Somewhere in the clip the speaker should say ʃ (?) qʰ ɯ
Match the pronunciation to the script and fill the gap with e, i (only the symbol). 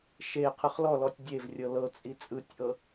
e